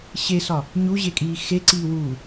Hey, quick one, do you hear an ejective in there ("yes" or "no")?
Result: yes